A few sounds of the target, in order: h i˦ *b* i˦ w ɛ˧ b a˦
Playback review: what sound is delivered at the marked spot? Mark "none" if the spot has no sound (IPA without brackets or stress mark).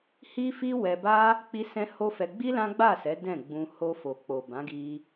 f